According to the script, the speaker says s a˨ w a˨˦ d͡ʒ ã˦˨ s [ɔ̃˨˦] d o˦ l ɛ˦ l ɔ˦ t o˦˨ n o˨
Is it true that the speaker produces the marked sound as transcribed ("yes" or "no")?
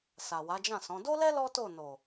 yes